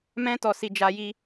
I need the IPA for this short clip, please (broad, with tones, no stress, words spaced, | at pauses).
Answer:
mɛ̃˦tɔ˧ si˧d͡ʒa˧ji˧